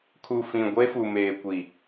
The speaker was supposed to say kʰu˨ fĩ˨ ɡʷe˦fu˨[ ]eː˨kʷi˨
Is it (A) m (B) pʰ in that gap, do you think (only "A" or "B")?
A